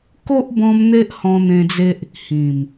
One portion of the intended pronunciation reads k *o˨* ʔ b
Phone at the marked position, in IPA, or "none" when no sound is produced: o˦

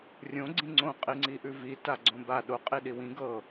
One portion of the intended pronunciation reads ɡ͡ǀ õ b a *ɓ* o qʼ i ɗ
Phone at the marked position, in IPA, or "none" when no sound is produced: ɗ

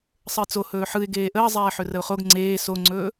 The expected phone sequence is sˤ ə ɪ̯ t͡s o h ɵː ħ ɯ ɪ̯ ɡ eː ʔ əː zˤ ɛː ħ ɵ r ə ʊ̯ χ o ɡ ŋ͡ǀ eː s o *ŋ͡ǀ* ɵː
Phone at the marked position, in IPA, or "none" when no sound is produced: ŋ͡ǀ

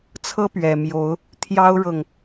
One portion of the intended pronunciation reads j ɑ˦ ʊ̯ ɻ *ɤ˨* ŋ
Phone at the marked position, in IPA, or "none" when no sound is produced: ɤ˨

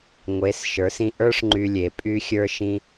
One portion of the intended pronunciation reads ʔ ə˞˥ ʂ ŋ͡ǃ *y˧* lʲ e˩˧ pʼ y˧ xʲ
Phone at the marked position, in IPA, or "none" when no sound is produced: y˧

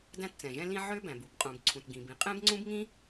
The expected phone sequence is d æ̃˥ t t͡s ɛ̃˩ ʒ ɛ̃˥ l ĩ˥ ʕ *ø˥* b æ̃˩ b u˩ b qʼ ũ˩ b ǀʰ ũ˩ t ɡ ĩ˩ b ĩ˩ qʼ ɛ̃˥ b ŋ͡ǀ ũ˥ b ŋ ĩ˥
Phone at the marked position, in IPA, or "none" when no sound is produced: ø˥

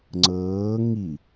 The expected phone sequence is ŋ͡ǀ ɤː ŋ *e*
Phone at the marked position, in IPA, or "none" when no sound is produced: i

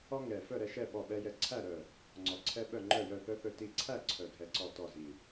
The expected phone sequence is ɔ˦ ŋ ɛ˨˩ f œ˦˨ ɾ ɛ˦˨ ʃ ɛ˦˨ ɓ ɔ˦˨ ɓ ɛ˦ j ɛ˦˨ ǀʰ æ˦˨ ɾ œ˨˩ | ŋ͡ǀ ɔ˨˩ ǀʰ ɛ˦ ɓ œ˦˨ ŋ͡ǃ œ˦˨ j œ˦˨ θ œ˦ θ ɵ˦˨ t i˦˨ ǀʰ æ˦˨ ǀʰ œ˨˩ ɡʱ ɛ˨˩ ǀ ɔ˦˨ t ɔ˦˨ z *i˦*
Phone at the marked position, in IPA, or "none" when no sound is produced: i˨˩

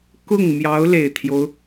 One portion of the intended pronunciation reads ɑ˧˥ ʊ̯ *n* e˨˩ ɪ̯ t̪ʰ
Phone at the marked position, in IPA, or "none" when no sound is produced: l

